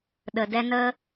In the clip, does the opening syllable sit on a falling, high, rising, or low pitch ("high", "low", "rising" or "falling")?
low